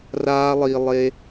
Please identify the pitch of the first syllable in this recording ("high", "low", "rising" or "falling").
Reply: high